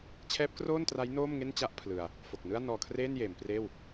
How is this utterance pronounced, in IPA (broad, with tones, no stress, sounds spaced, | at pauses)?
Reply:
t͡ɕʰ ɛː˦˥ p̚ k r oː˥˩ n t r a˦˥ j n oː˥˩ m ŋ e˥˩ n t͡ɕ a˥˩ ʔ pʰ l ɯ˧ a̯ | f o˨˩ k̚ n ɯ˥˩ a̯ n ɔː˧ kʰ r eː˥˩ n j eː˩˦ m p r eː˥˩ w